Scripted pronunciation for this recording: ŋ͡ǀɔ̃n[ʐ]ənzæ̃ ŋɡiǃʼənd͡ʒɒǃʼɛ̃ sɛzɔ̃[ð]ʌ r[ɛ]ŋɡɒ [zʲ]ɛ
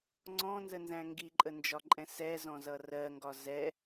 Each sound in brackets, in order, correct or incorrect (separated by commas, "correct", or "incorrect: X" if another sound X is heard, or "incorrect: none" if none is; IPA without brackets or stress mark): incorrect: z, incorrect: z, incorrect: ɜ, incorrect: z